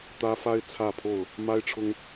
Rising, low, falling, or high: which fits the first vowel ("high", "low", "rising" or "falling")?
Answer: high